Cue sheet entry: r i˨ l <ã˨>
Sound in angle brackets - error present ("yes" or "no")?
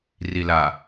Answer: yes